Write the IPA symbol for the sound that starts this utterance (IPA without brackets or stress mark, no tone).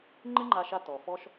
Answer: ŋ͡ǃ